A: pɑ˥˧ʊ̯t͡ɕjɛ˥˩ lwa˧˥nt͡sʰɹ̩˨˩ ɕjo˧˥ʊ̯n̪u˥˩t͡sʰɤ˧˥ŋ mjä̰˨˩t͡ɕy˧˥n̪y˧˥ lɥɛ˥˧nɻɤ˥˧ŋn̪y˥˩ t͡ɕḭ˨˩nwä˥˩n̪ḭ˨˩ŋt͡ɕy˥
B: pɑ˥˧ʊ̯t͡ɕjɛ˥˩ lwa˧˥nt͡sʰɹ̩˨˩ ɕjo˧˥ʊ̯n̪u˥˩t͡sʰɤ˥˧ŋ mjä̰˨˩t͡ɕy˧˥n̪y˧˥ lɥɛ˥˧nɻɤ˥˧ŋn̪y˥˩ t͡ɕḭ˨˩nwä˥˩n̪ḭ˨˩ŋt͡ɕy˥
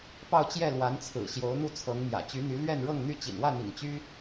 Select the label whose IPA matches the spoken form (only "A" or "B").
A